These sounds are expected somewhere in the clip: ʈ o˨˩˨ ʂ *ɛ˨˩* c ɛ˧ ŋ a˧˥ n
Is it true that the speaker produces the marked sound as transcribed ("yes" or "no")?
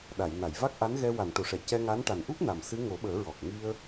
no